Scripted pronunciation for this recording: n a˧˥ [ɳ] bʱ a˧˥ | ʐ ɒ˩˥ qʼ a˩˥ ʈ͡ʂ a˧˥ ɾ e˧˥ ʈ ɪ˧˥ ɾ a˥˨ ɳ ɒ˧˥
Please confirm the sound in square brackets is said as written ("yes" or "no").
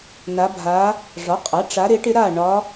no